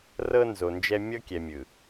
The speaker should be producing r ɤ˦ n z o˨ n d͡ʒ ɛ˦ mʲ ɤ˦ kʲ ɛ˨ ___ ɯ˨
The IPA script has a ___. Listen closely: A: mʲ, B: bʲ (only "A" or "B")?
A